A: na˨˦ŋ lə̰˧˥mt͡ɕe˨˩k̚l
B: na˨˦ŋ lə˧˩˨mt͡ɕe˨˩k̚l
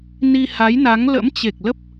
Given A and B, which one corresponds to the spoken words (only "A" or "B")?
A